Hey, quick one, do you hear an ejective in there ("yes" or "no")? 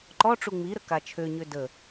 no